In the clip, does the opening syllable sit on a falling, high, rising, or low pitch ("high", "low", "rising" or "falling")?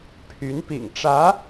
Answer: rising